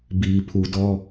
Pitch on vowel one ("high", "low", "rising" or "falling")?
low